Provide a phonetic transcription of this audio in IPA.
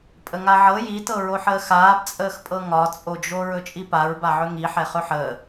pʼ ə ŋ a ʕ ɤ j i t ɤ ɹ o ħ əː x aː b t͡sʼ əː x pʼ ɤ ŋ ɒ t͡sʼ o d͡ʒ o ɹ ɵ t͡ʃʼ i p a ɹ b a ʕ ɵ ŋ i ħ ɛ χ ɵ ħ əː

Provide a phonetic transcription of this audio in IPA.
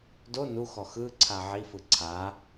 d o n u x ɔ x ɯ ǀʰ a ʕ i f ɯ ǀʰ a

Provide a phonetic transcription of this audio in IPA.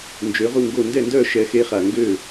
n d͡ʒ ø˨˦ ʁ u˦˨ ŋ ɡ o˦˨ n d ɛ˦˨ n d œ˦˨ ʃ ɛ˨˦ x e˧ χ a˨ ŋ ɡ ø˦˨

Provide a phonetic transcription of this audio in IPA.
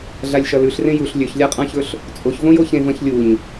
ɮ a lʲ ʃ ɐ l ʉ ɬ r ẽ j u ɬ lʲ ɵ ç lʲ a qʼ ã ç ɵ ɬ | t͡sʼ o ç v õ j o ç ẽ v ɐ̃ ç lʲ u ɲ

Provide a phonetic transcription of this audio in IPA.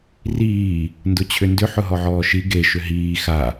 r iː | n d ʊ t͡ɕʰ ʏ n d ʏ ħ ʊ ɦ ɔ ʕ ɔː ʃ i ɡ e ʃ ʏ ɦ iː x a

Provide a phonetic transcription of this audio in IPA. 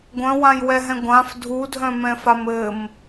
ɡʷ œ̃ w ã j w ɛ ɦ ɛ̃ ɡʷ ã f dʱ u dʱ œ̃ m ɛ̃ f a m ɘ m

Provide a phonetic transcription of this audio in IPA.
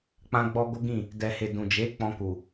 k͡p ã˧ ɡ͡b ɔ˧ ɡ o˦ ɡ ĩ˦˨ | d ɛ˨ h e˨ d ũ˨ d͡ʒ e˨˦ k͡p ɔ̃˧ k u˨

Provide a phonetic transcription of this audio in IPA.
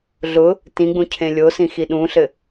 ɮ ʊ | t ĩ ɡ͡b ũ cʰ ẽ lʲ o s ĩ x i ɗ ũ ɬ ɘ

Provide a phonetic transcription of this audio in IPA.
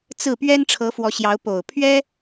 t͡s ɹ̩˥˩ p ɥ ɛ˥ n ʈ͡ʂʰ ɤ˧˥ f w ɔ˧˥ ɕ j ɑ˧˥ ʊ̯ p o˨˩ ʊ̯ pʰ ɥ ɛ˥

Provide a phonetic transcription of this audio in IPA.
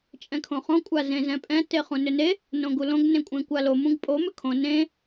t͡ʃʼ ɛ̃ kʰ õ χ õ kʷʼ a z ẽ z ɛ̃ pʼ ɛ̃ t e χ ũ n ʏ n e | n õ ɡ u l õ ɡ n ẽ kʷʼ ẽ kʷ a l o m ũ ɡ pʼ o m ʏ kʰ õ n ẽ

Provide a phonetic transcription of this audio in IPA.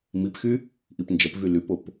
m i p x y | ʔ i p n d͡ʒ ɐ p v y l y p o p

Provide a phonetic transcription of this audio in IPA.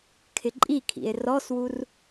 kʰ ɪ ǃʼ i kʰ ḭ e̯ r ɔ s w u r

